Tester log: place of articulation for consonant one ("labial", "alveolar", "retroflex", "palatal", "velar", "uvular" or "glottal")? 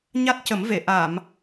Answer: palatal